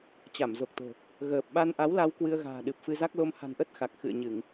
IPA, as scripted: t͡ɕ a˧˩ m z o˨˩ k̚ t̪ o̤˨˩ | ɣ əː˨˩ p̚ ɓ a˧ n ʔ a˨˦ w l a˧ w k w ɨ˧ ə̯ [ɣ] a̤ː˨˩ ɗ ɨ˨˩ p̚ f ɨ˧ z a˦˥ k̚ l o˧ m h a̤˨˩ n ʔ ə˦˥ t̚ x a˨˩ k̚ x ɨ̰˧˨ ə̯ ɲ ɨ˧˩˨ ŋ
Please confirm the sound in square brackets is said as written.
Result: yes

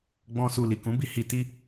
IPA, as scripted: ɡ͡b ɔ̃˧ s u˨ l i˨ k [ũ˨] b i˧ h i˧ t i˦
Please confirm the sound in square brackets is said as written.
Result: no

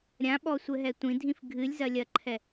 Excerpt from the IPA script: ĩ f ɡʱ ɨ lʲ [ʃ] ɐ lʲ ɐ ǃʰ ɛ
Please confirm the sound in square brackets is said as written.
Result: no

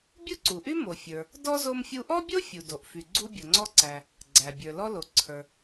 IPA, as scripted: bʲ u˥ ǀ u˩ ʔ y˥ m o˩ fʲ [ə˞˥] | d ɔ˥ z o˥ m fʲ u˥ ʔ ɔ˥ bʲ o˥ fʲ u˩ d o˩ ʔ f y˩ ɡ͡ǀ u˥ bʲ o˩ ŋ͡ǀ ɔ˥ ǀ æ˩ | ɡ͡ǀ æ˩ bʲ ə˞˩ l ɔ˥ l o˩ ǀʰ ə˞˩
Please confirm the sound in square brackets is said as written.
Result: no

